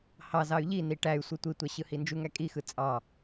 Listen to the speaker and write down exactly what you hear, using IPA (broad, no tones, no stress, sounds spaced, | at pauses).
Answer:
h ɑ z ɑ y̯ ʎ i n i ʈ æ y̯ sʷ i tʷ i tʷ æ ɕ ɯ h i n d͡ʒ u ŋ æ kʼ i x ɯ t͡sʼ ɑ